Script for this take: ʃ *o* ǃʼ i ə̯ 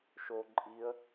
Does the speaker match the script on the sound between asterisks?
yes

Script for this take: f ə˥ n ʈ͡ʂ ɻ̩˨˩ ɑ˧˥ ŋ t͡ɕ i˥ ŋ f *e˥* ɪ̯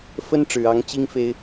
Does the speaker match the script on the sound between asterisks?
yes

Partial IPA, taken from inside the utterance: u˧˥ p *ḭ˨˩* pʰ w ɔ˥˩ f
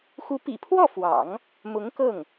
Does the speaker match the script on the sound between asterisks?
yes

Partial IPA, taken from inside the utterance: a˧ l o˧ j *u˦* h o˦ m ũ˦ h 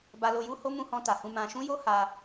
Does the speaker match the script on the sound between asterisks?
yes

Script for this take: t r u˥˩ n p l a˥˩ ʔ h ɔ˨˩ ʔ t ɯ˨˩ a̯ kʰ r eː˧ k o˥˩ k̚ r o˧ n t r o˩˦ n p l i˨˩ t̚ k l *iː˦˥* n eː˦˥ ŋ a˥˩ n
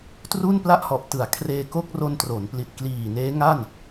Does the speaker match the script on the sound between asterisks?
no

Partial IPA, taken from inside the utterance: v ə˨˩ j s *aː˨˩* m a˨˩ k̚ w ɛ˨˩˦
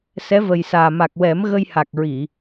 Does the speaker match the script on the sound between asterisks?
yes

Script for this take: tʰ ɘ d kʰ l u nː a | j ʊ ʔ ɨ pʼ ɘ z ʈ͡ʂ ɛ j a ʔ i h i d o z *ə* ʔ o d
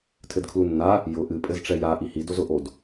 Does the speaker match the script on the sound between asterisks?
no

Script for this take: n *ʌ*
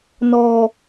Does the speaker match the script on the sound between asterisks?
no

